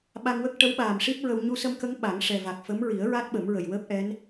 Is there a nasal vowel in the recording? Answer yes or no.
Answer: no